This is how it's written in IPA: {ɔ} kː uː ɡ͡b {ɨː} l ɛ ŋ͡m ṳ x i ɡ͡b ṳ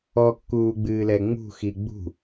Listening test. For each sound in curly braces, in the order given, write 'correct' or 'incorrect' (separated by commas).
correct, correct